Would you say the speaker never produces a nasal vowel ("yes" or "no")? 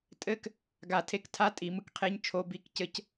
yes